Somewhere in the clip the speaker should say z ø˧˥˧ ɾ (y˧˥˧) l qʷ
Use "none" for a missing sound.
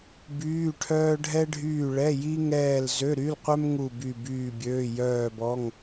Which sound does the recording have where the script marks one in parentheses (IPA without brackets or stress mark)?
y˧˥˧